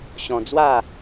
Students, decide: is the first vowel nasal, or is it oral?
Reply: nasal